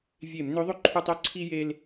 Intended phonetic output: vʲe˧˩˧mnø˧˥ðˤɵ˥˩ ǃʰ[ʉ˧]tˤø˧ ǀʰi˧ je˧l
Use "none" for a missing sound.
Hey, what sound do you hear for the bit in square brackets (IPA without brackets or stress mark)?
ʉ˧